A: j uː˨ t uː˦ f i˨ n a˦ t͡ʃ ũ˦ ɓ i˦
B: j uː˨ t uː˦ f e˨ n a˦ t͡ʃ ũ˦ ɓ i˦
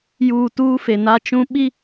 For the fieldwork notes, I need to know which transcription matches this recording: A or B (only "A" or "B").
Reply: B